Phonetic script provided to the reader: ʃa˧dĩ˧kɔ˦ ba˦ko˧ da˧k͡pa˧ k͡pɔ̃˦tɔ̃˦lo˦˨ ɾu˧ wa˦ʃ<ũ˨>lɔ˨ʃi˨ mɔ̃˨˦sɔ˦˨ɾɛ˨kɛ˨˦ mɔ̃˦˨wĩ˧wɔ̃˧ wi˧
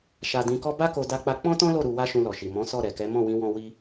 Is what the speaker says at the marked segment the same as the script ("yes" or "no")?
no